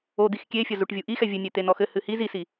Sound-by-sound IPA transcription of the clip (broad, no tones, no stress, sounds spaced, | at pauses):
o d̪ i x kʲ e fʲ ɐ z u ʈ vʲ u ʔ i x ɛ vʲ ɨ nʲ e t̪ e n ɔ x ɘ h ɨ h i z i s i